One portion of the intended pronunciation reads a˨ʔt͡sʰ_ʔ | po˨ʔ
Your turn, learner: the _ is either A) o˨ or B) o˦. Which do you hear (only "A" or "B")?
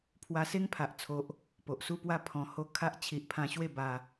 A